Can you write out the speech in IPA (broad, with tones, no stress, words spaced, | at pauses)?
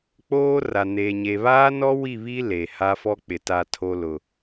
k͡poː˦ra˨neː˨ ɲe˨βaː˦nɔ˦ wi˦˨βi˦ le˨ha˦ fɔ˦k͡pɪ˨ ta˨tʰo˨lʊ˨